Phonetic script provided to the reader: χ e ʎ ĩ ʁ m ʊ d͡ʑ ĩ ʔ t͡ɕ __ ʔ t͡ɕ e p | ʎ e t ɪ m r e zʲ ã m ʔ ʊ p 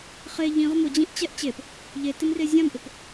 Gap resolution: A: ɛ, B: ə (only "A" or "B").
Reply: A